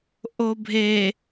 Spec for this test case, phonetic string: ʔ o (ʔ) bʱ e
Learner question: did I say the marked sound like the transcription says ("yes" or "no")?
no